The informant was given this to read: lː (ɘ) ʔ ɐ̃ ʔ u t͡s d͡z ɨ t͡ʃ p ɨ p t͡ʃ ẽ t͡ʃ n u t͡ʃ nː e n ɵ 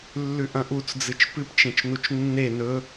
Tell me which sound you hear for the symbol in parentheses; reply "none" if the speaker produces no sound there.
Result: ʉ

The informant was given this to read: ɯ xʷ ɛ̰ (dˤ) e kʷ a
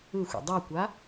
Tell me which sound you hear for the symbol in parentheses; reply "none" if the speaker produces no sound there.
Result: dˤ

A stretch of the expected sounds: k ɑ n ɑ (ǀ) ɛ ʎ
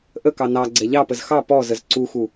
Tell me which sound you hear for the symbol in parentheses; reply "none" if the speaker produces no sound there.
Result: ɡ͡ǀ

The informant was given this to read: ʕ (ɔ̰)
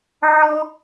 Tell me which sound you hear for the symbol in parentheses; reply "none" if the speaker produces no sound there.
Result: ɔ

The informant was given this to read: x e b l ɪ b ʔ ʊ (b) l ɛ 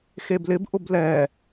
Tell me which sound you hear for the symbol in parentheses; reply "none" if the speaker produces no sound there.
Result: b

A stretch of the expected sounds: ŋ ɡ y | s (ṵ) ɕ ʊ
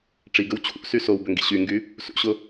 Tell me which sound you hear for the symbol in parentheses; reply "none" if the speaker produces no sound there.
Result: ṵ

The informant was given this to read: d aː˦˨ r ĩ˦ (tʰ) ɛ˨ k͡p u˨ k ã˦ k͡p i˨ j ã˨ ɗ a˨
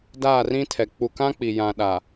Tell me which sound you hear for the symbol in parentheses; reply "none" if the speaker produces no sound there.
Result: tʰ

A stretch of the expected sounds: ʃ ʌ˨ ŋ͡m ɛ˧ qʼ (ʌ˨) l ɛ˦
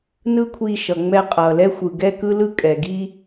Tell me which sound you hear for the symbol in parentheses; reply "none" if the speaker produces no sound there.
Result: ʌː˨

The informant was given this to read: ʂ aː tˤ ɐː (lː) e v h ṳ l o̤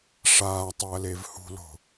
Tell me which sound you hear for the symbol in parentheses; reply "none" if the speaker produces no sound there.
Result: l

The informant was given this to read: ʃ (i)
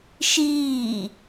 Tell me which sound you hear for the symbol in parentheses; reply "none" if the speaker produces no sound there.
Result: iː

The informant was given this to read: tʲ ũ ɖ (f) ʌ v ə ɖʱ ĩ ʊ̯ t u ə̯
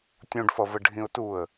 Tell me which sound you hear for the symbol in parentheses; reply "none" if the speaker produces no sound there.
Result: f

